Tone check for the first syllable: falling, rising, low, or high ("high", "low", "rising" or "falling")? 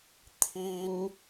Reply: high